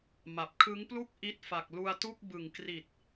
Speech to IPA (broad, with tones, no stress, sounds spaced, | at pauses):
m a˨˩ p̚ kʰ ɯ˦˥ ŋ p l u˥˩ k̚ ʔ i˦˥ t̚ f a˨˩ k̚ l u˧ a̯ t u˥˩ k̚ b ɯ˨˩ ŋ k r i˨˩ t̚